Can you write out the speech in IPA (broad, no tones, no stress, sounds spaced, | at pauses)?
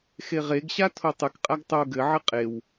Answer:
x e ʁ e ɡ ɕ a tʰ o tˤ ɨ k qʼ a ɡ tˤ o ɡ ɘ ʕ ɘ qʼ e w